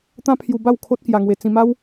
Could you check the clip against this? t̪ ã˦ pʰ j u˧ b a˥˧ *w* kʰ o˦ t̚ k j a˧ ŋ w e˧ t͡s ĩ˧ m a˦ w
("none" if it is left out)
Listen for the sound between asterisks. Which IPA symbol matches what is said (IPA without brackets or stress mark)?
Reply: w